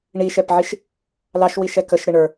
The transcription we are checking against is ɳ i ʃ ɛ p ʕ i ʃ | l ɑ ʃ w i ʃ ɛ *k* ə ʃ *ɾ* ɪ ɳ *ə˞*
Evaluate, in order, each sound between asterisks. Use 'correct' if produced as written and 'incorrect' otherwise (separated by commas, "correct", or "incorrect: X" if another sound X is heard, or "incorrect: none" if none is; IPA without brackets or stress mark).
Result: correct, correct, correct